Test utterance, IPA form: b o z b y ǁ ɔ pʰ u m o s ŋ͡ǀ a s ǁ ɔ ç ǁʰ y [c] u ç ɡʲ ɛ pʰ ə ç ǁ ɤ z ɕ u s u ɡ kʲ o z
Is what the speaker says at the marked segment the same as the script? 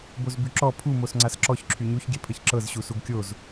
no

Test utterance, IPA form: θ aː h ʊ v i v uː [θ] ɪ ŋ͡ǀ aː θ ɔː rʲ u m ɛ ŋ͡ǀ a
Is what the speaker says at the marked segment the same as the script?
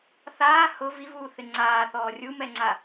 yes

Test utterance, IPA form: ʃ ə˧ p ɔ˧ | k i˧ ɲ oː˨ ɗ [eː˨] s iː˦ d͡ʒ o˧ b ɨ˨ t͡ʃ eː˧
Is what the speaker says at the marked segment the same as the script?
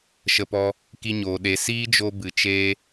no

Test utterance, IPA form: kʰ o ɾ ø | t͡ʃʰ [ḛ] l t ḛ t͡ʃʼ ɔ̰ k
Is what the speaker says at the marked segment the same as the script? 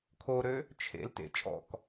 yes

